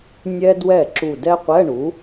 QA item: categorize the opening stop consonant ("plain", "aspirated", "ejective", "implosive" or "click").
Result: plain